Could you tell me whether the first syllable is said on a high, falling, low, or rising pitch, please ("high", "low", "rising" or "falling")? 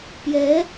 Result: rising